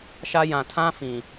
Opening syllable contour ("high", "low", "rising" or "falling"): high